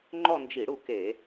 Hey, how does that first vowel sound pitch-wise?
falling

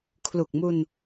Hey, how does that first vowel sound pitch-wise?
low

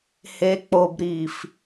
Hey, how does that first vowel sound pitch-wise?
low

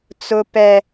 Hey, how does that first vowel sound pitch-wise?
high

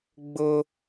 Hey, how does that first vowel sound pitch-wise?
high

